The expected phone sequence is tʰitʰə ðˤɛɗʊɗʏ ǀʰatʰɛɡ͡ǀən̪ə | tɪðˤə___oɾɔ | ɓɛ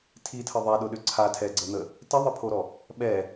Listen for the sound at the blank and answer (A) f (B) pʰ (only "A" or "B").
B